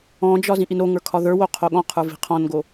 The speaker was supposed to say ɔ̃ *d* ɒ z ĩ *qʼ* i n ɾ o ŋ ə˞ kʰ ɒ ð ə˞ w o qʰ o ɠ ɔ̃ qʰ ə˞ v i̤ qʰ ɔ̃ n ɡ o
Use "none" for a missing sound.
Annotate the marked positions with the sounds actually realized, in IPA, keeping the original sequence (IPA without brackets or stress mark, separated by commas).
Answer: d͡ʒ, ʔ